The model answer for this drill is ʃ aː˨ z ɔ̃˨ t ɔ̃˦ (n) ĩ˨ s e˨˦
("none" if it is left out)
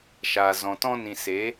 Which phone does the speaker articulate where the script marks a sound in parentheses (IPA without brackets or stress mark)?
n